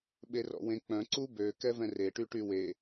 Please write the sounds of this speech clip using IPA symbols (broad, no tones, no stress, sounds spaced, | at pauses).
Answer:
ɓ e r ɔ̰ w ẽ k͡p œ̃ ǀ u b ø k ɛ v ɛ̃ r e ʈ y ʈ y w e